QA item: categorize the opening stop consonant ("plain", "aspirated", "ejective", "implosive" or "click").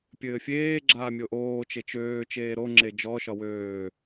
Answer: plain